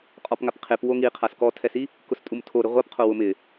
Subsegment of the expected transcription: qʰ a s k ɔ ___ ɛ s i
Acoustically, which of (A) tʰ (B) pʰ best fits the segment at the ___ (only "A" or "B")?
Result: A